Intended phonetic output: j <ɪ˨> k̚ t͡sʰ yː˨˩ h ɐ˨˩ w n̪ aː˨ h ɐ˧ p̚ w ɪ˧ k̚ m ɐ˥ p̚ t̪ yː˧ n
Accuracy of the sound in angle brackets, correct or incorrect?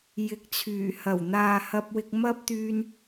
incorrect